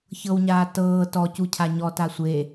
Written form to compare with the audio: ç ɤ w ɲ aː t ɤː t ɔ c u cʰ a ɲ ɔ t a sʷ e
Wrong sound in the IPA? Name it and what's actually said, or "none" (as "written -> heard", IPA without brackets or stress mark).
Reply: none